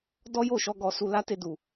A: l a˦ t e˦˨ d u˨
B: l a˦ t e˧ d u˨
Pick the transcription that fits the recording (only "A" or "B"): A